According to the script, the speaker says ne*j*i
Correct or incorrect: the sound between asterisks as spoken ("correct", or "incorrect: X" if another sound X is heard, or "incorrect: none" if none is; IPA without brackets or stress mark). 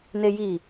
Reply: correct